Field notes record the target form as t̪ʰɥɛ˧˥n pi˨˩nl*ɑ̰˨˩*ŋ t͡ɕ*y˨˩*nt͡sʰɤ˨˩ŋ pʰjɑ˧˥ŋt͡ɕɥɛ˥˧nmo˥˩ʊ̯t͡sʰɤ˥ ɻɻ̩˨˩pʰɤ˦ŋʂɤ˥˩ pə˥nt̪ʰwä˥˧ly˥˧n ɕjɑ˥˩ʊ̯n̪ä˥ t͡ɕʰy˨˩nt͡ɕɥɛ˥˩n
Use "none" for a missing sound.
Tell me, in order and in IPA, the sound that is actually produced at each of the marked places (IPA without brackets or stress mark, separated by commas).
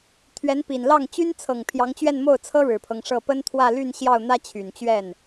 ɑ˥˩, y˥